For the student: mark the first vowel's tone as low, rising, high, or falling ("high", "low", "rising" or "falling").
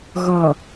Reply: low